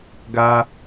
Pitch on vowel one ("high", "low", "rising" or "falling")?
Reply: high